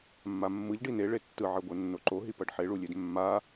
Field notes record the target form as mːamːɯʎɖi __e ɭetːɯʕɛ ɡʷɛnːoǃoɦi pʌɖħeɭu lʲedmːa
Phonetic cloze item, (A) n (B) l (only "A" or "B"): A